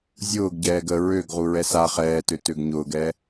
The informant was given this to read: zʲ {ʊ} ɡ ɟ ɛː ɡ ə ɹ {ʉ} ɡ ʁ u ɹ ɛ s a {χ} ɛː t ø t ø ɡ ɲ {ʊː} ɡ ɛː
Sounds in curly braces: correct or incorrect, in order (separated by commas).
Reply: incorrect, incorrect, correct, correct